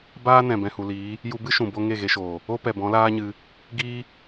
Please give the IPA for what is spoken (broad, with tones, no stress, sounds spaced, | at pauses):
b aː˦ n ɛ̃˨ b ɛ̃˨ h u˨ l iː˨˦ | j u˧ b ɨ˦ ʃ ũ˨ b o˧ ŋ e˦˨ ɣ e˧ ʃ oː˨ | o˦ p ɛ˨ b ɔ̃˨˦ l aː˦ ɲ ɨ˧ | ɡ i˦